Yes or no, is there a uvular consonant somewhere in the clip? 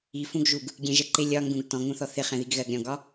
yes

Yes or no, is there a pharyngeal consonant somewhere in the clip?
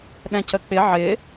yes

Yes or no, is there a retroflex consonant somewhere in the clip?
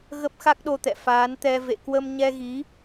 no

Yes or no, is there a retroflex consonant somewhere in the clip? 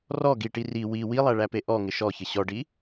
yes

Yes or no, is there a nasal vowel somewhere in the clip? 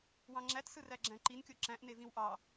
yes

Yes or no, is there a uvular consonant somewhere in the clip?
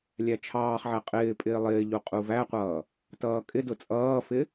yes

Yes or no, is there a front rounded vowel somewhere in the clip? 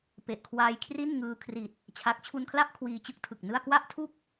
no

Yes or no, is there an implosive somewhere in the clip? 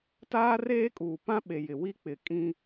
yes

